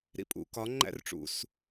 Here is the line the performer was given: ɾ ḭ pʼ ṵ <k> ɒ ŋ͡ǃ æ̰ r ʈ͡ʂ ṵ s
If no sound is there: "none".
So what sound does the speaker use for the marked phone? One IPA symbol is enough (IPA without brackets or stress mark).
k